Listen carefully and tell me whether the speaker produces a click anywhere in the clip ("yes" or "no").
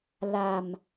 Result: no